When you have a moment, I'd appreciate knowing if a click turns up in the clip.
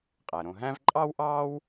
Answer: yes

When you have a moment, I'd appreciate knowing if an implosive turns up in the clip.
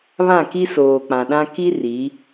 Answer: yes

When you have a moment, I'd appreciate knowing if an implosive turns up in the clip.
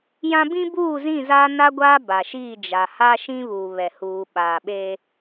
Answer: yes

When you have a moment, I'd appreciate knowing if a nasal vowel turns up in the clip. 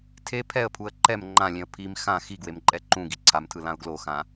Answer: yes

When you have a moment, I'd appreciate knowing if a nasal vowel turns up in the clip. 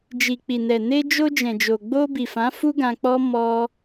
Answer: yes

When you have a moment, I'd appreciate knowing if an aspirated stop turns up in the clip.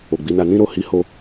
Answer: no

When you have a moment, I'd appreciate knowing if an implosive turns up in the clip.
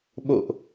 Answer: yes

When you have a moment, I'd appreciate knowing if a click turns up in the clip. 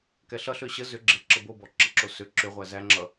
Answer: yes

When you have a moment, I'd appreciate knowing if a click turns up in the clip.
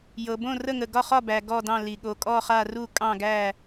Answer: no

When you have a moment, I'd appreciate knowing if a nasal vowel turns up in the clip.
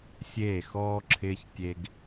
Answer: no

